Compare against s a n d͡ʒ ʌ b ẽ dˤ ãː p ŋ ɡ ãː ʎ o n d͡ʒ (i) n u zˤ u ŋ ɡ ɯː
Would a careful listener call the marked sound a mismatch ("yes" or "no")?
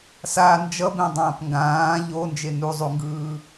yes